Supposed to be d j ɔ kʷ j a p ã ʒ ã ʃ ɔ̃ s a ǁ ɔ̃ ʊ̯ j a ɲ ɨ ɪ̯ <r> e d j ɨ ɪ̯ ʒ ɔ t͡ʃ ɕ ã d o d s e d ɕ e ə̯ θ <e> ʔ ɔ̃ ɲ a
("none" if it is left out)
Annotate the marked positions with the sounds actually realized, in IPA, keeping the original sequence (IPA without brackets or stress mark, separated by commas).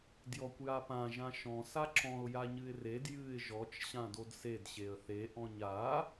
r, e